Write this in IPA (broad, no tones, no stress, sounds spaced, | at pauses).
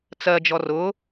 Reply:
t͡s ɜ d͡ʒ ɔ r ʊ